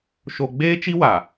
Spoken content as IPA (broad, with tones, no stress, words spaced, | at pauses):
ʃo˦ ɡ͡beː˦t͡ʃi˦wa˨